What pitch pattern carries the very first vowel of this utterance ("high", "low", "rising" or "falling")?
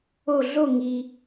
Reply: falling